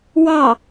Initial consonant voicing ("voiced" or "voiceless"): voiced